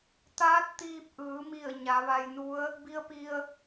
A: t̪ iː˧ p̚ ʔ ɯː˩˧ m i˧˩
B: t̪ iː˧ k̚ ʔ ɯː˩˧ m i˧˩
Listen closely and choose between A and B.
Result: A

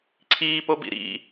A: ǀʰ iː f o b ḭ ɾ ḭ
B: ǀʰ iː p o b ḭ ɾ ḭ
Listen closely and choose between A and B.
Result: B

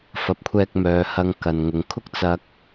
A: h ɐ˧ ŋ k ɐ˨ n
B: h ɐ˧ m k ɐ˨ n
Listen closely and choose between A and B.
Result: A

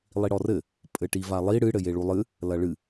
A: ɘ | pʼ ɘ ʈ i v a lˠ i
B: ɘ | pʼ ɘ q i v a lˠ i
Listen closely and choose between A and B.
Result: A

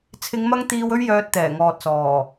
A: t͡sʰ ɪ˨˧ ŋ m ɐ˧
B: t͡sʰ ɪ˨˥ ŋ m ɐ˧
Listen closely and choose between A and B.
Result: A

